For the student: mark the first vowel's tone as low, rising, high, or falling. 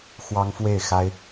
high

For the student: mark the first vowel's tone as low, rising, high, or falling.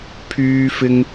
high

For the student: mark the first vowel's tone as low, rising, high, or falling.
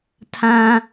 high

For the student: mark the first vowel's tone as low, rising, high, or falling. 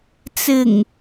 low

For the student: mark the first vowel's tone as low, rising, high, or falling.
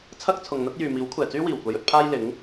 high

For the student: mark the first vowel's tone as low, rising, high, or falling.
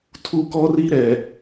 high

